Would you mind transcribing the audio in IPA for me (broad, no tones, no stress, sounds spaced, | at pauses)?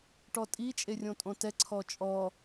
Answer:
ʈ ɔ tʼ i t͡ʃʼ e rʲ õ tʼ õ t ɛ ǀʰ ɔ t͡ʃʼ ɔ